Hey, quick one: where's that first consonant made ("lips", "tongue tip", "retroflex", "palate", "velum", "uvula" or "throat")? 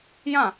palate